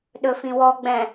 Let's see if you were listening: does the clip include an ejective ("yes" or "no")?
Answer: no